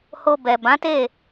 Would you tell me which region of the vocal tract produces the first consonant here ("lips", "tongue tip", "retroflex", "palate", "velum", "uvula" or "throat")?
throat